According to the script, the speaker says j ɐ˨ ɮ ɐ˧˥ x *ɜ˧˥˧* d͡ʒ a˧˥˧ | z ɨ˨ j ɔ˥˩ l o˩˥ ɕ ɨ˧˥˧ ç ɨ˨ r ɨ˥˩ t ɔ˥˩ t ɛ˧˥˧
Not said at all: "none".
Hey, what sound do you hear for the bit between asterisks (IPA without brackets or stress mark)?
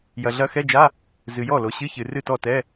ɛ˧˥˧